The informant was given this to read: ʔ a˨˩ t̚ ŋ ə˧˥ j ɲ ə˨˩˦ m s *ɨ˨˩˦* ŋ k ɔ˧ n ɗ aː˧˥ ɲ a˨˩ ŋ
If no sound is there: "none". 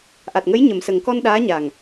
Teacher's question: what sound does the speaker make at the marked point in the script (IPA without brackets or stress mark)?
ə˨˩˦